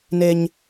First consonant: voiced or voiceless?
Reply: voiced